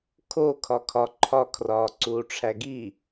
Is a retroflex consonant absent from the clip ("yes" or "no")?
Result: no